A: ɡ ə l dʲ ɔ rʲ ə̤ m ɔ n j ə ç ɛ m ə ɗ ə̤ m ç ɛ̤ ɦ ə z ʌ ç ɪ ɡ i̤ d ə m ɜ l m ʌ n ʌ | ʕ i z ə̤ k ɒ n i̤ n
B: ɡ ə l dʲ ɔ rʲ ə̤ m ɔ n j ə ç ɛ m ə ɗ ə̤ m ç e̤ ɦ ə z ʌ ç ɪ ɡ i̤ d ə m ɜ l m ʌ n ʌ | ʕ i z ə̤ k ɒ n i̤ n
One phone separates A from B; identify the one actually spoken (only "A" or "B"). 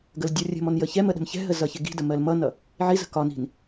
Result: A